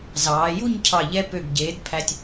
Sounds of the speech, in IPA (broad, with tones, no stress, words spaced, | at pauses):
zɑː˩˧ju˥˧ɲcʰɑ˧˩ ʎɛ˧ pø˧˩ɡɟeː˩˧d pʰæ˧tʲ